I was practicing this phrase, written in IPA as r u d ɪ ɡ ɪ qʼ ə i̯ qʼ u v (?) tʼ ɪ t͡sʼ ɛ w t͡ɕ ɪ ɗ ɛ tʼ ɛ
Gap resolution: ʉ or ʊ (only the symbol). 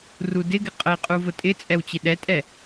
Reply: ʊ